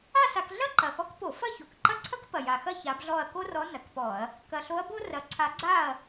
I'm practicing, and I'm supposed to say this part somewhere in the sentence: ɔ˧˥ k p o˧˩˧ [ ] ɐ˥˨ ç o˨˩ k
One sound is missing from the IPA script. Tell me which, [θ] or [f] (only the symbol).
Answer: f